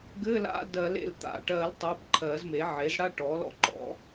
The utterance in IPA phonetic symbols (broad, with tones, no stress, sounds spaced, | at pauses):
ɡ ɘ˧˥˧ l a̰˧˥˧ d ɜ˨˩˦ l ḛ˩˧˩ l t̪ a̰˧˩ ʈ ɜ˨˩˦ l tˤ ɜ˩˧˩ b ǃʰ ɜ˨˩˦ z m e˩˥ ʕ e˩˥ z ɽ a˥˧ ʈ ɔ˩˥ l ɔ̰˩˥ ǃ ɔ̰˩˥